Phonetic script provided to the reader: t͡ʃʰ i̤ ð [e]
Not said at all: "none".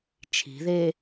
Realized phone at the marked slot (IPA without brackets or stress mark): e